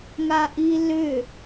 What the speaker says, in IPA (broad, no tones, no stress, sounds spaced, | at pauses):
ŋ a ʔ i l ʏ